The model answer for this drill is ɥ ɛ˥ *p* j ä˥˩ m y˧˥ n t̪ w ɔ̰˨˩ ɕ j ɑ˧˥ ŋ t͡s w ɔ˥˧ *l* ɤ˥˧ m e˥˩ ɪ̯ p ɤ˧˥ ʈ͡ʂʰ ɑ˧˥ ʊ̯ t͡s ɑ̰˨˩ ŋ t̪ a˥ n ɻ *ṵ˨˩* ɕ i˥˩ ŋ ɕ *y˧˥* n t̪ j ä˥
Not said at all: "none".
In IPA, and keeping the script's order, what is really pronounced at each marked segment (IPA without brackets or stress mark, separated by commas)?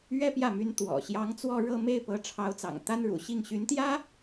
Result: p, ɻ, ṵ˨˩, y˧˥